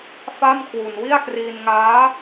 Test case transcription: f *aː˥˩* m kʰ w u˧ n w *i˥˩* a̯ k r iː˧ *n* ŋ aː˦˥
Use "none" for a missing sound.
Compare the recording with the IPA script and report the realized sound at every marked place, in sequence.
a˥˩, i˥˩, n

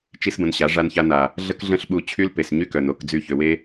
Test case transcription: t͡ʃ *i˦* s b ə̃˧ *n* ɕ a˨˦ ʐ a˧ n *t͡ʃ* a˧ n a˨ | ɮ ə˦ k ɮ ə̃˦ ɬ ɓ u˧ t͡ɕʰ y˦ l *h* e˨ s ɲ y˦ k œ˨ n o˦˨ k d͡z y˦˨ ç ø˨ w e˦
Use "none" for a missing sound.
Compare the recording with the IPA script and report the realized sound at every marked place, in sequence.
i˦, n, ç, p

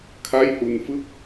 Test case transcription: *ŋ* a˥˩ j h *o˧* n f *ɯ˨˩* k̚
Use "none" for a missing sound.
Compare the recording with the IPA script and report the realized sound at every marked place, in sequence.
kʰ, u˧, ɯ˥˩

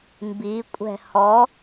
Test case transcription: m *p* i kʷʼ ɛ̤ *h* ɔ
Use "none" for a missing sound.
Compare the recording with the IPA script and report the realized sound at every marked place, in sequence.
b, h

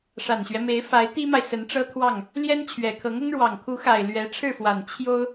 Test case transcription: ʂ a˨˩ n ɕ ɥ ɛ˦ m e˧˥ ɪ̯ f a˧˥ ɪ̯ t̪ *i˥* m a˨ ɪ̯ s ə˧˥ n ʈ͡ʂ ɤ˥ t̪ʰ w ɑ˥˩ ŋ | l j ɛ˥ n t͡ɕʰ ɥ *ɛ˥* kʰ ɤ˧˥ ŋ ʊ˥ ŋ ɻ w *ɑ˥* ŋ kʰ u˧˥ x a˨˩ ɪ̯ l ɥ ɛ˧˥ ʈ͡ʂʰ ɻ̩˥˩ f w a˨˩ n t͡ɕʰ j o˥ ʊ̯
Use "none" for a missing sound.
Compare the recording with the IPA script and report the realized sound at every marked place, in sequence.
i˥, ɛ˨˩, ɑ˨˩

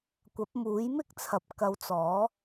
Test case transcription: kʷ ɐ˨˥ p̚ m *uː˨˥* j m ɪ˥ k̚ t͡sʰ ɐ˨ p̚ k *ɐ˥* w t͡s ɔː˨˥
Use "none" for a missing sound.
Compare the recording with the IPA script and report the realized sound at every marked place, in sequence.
uː˨˥, ɐ˨˥

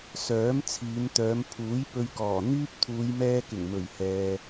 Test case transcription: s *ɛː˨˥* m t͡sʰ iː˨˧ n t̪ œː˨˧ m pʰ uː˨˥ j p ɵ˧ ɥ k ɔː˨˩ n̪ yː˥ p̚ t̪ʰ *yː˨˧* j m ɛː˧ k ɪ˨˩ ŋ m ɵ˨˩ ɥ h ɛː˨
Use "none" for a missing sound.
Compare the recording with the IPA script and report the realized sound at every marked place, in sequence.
œː˨˥, uː˨˧

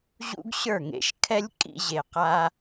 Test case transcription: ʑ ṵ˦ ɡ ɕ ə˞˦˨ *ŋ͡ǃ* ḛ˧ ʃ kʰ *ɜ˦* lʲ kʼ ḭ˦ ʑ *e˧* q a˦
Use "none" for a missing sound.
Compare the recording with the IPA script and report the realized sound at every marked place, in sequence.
ŋ, ɛ˦, e˧

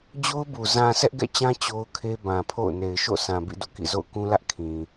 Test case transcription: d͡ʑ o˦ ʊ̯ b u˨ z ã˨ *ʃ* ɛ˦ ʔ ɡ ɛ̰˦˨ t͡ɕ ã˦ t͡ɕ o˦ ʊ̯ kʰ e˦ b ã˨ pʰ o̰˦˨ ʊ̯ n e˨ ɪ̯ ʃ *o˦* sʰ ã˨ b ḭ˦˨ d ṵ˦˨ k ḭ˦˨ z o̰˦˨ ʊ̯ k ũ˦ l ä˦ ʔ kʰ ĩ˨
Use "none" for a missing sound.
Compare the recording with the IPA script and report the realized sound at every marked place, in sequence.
s, o̰˦˨

